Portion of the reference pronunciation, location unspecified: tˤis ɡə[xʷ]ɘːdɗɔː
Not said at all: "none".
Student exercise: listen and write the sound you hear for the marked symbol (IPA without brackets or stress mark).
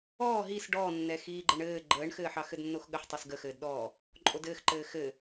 x